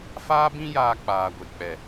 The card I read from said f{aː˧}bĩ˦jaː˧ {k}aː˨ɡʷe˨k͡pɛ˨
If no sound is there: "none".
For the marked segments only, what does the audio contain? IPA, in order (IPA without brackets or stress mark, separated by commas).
aː˦, k͡p